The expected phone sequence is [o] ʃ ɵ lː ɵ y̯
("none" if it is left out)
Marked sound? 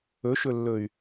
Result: ɵ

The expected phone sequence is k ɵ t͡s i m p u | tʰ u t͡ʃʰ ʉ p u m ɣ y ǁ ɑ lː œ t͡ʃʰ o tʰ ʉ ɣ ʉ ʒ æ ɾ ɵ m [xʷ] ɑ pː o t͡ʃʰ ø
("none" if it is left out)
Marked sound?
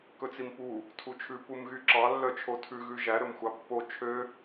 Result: xʷ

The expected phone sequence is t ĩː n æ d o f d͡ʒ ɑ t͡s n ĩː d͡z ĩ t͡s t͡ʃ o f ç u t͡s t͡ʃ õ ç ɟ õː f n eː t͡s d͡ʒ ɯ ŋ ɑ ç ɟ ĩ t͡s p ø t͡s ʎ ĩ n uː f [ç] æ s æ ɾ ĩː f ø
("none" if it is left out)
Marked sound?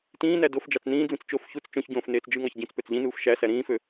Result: ʃ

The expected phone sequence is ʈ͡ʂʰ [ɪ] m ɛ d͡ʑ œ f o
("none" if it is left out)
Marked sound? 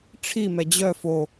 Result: i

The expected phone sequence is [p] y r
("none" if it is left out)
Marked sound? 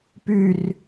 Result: p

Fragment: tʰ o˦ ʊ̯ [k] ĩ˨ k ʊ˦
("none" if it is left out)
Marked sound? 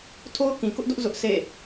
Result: k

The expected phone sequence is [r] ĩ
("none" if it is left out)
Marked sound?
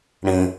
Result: ɽ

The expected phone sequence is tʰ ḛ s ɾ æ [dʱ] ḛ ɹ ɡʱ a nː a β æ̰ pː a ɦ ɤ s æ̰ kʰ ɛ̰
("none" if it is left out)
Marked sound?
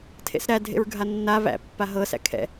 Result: dʱ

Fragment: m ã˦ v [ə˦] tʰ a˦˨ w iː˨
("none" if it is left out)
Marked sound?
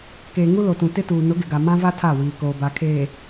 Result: a˦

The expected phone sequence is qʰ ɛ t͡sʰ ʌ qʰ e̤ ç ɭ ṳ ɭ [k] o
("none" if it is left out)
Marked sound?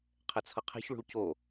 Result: c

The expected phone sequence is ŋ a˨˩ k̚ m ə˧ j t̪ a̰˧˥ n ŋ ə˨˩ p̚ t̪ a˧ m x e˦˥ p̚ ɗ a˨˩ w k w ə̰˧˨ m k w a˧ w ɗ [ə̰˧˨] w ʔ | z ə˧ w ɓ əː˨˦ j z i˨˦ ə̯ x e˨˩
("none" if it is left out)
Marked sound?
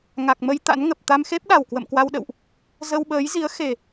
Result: ə̰˧˨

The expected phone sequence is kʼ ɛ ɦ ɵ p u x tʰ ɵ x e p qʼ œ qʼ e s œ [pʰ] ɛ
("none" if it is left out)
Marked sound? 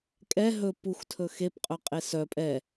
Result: pʼ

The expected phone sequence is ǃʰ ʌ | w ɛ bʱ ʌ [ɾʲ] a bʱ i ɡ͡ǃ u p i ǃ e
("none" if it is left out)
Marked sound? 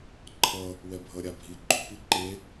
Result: ɾʲ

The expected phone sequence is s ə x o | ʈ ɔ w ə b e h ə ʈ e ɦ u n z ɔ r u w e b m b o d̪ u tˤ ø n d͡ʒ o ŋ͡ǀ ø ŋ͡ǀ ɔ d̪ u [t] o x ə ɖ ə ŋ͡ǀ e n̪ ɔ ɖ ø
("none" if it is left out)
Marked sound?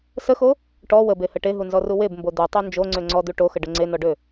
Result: ʈ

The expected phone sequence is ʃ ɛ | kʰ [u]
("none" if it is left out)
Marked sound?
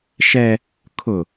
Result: ʊ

